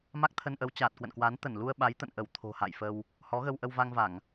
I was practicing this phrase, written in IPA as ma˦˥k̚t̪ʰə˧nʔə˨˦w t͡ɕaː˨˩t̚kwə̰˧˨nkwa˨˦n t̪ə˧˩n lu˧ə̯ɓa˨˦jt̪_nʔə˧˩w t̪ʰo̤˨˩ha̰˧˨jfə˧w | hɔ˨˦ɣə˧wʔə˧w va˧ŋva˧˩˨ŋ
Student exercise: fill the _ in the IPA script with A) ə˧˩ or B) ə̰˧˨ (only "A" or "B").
B